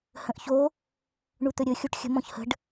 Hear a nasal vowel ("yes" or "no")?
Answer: yes